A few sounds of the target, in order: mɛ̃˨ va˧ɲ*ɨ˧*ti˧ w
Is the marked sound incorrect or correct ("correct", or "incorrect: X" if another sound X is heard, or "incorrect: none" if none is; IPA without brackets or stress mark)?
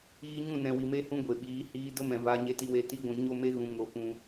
incorrect: e˧